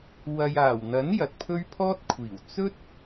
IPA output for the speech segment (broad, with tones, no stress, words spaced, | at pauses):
wɐ˨jaː˨˩wn̪ɐ˨˥n jɐ˨t̚pʰɵ˥ɥpʰɔː˥t̚kʷʰiː˨˩w t͡sɵ˥t̚